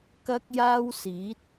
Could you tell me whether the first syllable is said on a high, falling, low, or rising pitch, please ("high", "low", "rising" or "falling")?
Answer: high